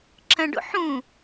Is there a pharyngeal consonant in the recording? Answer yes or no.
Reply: yes